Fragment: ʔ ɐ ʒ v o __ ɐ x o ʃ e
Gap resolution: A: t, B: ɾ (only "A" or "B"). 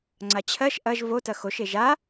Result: A